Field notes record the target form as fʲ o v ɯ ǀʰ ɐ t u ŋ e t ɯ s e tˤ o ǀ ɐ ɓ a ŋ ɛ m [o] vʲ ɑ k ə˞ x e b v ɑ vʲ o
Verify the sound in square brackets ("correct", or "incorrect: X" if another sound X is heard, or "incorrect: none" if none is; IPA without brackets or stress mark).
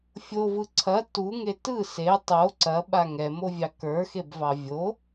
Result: correct